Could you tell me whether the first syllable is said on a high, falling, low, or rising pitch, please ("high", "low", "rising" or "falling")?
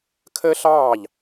high